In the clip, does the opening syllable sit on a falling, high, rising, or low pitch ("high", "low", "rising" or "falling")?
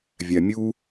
low